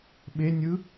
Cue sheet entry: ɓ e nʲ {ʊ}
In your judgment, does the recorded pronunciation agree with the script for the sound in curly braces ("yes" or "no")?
no